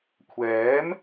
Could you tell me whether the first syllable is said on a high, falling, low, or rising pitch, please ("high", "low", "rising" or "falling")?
rising